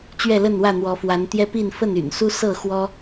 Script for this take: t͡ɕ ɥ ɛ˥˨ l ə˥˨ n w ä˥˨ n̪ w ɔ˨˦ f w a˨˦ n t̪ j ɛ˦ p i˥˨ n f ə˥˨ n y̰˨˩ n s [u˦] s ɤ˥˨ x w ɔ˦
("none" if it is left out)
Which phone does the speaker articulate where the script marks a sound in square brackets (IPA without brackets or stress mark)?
u˦